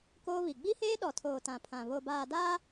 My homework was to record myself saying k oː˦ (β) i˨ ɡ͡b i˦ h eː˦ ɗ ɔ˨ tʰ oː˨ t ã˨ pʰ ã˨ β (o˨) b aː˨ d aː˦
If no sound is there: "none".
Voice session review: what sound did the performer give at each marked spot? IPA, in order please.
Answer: β, o˨

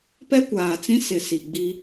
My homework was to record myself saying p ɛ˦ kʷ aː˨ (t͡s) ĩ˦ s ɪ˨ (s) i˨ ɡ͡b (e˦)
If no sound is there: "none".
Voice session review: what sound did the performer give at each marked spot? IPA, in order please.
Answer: t͡s, s, i˦

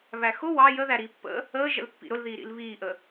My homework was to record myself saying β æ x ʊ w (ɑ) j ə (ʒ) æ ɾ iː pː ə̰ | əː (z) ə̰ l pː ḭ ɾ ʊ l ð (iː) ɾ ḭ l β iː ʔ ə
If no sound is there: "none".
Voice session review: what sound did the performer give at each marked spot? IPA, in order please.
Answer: ɑ, ð, ʒ, iː

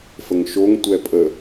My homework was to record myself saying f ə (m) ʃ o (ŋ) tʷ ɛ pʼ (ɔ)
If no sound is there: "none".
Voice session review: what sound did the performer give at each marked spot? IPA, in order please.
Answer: ŋ, ŋ, ə

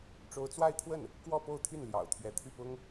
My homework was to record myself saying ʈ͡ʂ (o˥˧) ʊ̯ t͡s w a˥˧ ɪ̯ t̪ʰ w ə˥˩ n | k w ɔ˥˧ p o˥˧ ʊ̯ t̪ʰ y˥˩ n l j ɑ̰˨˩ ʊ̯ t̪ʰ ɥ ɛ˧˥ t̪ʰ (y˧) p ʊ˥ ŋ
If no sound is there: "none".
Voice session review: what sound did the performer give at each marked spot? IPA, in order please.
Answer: o˥, y˥˩

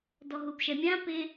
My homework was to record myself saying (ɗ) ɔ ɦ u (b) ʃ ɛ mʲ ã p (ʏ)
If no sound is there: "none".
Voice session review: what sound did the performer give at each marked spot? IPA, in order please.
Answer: d, b, ɪ

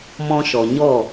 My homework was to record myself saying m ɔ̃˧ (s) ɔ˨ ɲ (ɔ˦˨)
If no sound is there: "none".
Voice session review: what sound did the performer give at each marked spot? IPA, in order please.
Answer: ʃ, ɔ˦˨

